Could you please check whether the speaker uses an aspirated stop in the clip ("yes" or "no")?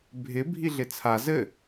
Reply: yes